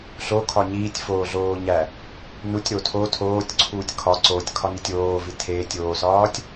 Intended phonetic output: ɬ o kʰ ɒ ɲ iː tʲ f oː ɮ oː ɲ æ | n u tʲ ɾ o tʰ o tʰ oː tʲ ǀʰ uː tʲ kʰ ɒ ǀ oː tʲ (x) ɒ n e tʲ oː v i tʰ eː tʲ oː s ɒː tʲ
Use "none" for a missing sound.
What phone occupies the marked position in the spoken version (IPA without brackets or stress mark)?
kʰ